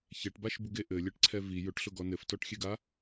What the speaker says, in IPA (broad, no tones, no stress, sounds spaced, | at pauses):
ç ɛ ʈ b a ʃ b u ɡ e ʔ ɘ lʲ ɛ ʈ ǀʰ ɛ v i j ʊ ʈ ɬ ʊ ɡ ɔ n ɘ f t ɔ ʈ xʲ e ɡ a